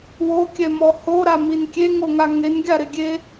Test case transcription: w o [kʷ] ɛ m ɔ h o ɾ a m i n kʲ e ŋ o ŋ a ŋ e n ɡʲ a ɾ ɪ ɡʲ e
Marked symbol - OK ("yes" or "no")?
no